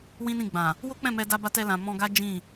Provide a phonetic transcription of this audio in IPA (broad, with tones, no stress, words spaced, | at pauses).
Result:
wĩ˦nĩ˦˨ ɡ͡bã˨ | wo˦k͡pɛ̃˦˨mɛ˧da˧ ba˧tɛ˧lã˨ mɔ̃˧ɡa˦ d͡ʒĩ˦˨